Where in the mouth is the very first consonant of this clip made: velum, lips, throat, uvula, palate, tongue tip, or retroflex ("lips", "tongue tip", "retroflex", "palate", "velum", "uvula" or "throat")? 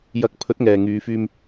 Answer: palate